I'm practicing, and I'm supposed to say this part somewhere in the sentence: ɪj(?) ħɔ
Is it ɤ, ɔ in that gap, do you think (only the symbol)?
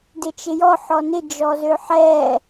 ɔ